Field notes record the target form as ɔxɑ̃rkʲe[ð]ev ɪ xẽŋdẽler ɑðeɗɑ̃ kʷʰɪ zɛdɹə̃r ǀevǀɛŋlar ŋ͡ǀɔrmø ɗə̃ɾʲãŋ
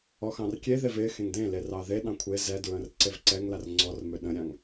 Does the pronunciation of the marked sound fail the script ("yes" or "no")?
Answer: no